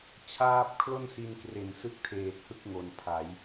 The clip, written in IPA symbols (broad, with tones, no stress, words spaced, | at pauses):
t͡ɕʰaː˦˥p̚kʰlo˥˩nsi˧nkre˨˩n sɯ˥˩k̚tʰeː˨˩t̚hɯ˥˩k̚ ŋo˨˩npʰa˩˦j